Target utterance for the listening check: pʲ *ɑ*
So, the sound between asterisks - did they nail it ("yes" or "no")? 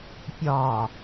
no